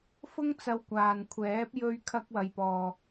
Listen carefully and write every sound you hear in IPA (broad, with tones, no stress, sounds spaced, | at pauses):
f ʊ˥ ŋ t͡s ɐ˧ w kʷ aː˨ n kʷʰ ɛː˨˥ p̚ j ɵ˧ ɥ kʰ ɐ˧ k̚ w ɐ˨ j p ɔː˨